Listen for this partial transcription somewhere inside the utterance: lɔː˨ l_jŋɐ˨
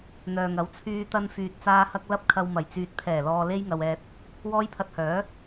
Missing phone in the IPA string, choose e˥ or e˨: e˥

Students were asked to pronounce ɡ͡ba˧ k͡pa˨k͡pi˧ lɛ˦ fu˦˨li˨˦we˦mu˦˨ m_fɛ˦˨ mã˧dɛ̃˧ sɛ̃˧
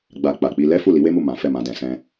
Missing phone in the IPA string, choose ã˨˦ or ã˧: ã˨˦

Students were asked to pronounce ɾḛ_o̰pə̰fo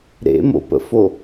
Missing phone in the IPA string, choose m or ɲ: m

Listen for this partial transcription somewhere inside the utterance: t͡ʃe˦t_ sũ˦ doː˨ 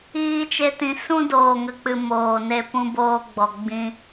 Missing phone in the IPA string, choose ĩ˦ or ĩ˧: ĩ˧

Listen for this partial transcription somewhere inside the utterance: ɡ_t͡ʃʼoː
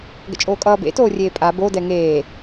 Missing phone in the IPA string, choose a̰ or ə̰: ə̰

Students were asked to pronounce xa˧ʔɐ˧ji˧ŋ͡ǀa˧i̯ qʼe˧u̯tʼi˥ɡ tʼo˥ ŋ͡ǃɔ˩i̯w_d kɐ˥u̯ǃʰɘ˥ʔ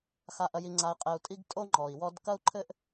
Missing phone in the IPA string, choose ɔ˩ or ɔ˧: ɔ˧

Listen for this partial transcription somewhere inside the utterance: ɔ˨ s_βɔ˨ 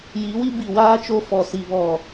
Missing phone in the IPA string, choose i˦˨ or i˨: i˨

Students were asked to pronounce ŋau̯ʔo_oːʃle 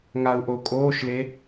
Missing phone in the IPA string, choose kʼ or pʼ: kʼ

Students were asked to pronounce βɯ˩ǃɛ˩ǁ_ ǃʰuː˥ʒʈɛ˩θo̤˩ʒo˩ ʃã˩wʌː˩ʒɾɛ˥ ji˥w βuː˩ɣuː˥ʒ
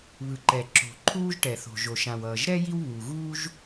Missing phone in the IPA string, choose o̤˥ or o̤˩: o̤˩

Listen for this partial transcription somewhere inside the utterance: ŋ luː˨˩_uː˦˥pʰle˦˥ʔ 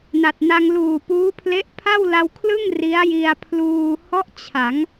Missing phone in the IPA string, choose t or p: p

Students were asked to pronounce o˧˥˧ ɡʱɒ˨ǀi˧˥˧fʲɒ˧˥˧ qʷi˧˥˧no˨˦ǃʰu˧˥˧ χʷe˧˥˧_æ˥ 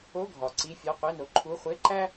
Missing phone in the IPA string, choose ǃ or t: ǃ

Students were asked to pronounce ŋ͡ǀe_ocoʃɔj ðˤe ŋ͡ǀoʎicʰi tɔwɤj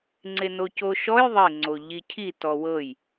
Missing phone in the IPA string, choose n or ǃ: n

